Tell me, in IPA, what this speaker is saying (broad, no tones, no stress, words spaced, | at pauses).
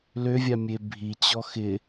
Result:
løvʲamʲe bʱit͡ɕɔ xɪ